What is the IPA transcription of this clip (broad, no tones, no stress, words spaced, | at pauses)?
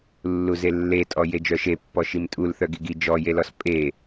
lːuzelːetʼɔ jed͡ʒœʃepːɔ ʃimtʼul θœɡiɡi d͡ʒɔjelɔs pʼe